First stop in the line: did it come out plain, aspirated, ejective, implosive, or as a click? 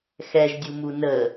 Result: plain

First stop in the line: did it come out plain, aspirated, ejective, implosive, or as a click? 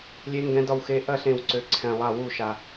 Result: plain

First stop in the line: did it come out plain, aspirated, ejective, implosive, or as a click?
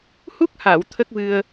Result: plain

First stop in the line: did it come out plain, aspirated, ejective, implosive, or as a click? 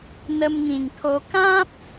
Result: aspirated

